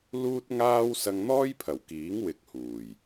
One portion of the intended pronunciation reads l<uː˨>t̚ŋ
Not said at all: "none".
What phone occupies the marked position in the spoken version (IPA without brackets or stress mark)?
uː˥